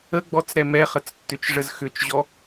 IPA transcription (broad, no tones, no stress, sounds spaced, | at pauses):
ə ɡ͡b ɔ t͡s ɾ ɛ m ɛ χ ə t͡s tː ʏ t͡ʃ ʐ ə z x ʏ t͡ʃ ʑ ɔ